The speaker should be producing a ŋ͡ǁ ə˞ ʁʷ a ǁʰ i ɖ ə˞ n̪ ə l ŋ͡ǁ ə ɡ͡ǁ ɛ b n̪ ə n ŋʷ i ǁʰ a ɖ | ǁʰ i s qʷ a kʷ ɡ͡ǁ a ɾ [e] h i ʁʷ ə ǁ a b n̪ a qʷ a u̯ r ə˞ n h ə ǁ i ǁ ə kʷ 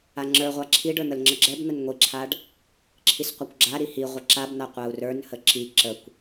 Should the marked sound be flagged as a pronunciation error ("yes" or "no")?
yes